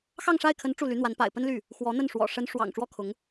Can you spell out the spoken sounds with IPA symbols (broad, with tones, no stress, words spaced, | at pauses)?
xɑ˥˧ŋʂa˥˩ɪ̯kʰə˧˥n ʈ͡ʂu˥˩ly˧˥n̪wa˧˥n pa̰˨˩ɪ̯ pə˥nly˥˩ | xwɔ˧˥n̪ə˥˩n ʂwɔ̰˨˩ʂə˧˥n ʂwɑ̰˨˩ŋ ʈ͡ʂwɔ˥kʰʊ˧˥ŋ